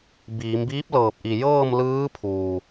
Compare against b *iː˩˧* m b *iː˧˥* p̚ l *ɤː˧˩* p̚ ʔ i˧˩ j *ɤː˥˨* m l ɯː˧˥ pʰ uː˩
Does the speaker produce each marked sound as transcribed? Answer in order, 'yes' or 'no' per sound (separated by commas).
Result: yes, yes, yes, yes